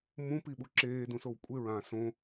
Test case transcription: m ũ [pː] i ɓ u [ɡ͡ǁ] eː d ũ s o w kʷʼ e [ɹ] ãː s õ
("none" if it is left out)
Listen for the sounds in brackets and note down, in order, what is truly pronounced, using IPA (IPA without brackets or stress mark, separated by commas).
p, ǁ, ɹ